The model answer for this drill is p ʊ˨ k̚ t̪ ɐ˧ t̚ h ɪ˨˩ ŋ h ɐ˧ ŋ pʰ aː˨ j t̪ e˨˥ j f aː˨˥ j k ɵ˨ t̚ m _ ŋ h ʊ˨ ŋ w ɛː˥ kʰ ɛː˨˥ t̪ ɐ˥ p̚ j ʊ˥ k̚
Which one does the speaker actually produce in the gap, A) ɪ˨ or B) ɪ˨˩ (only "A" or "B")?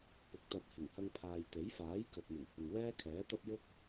B